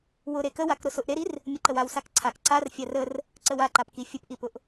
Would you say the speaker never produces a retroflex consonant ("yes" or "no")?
yes